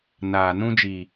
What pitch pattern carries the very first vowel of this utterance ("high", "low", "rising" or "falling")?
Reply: low